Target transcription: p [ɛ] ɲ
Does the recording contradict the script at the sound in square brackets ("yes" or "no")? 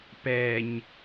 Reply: no